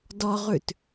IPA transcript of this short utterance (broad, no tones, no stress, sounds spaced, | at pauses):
d ɔ ʁ ʉ t